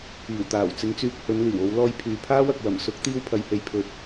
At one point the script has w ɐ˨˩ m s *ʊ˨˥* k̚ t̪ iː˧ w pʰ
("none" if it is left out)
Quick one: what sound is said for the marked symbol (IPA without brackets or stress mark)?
ʊ˨˥